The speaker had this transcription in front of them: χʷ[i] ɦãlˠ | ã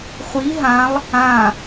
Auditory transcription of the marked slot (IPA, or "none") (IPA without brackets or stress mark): i